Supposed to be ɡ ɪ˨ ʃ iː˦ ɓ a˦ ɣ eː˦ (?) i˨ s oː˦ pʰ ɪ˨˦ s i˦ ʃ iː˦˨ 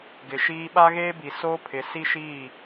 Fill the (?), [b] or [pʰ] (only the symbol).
b